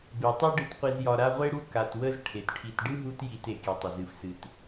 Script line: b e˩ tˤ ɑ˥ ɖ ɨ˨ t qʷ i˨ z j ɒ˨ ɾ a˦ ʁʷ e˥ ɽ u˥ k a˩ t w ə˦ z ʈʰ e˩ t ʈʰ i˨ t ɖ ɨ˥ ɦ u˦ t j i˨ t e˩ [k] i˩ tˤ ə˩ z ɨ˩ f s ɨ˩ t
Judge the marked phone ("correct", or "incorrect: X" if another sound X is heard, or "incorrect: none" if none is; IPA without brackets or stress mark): correct